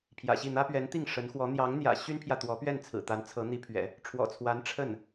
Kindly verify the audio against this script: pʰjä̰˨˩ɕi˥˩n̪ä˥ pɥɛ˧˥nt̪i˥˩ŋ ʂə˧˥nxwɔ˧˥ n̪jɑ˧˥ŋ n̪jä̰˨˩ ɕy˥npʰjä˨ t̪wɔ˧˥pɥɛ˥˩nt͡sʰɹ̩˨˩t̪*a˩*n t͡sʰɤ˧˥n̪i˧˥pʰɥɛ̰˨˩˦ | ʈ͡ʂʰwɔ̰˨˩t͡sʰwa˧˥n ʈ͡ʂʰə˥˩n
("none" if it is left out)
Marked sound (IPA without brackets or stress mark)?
a˧˥